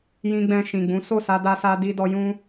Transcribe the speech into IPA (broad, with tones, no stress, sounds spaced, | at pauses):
j ĩ˧ ɡ͡b ɛ̃˧ ʃ ĩ˨ ɡ͡b ũ˨˦ s o˦˨ s a˧ d a˧ s a˧ d i˦ d ɔ˦ j ũ˦